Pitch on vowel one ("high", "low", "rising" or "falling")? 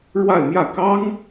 falling